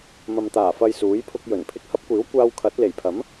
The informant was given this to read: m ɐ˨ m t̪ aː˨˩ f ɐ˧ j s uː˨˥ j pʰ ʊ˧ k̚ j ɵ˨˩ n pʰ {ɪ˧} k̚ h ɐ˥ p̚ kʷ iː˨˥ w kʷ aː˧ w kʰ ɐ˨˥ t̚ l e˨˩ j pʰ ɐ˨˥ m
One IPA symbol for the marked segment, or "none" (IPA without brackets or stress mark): ɪ˧